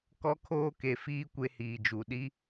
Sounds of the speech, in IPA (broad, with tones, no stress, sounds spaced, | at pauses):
k ɔ˦ kʰ oː˦ k e˨ f iː˦ kʷ e˦ h iː˨ d͡ʒ u˨ ɗ i˦